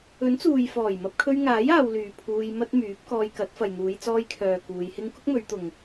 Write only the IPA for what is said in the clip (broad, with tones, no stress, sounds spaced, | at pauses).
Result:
ɵ˨˥ n t͡s uː˨ j f ɔː˨˩ j m ɐ˧ p̚ kʰ ɵ˧ ɥ ŋ aː˨˥ j aː˨˧ w l yː˨ pʰ uː˧ j m ɐ˥ t̚ m yː˨˥ p̚ k ɔː˧ j k ɐ˨˥ t̚ f ɐ˨ j n̪ uː˨˧ j t͡s ɔː˧ j kʰ œː˨ k uː˨˧ j h ɪ˥ ŋ k ʊ˥ k̚ m ɵ˨˧ ɥ t̪ ʊ˨ ŋ